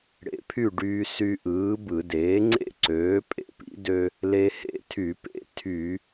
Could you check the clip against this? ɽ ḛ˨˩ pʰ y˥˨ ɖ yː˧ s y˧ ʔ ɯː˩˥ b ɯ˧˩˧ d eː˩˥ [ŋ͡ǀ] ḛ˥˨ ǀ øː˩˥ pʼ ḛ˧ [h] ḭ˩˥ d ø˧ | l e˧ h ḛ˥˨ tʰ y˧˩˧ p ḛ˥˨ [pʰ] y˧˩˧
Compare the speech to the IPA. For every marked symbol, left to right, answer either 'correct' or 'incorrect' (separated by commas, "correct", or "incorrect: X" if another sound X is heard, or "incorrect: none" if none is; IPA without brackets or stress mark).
correct, incorrect: p, incorrect: tʰ